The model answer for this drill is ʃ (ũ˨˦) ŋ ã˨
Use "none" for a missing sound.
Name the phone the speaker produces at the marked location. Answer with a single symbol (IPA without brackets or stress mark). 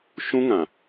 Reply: ũ˦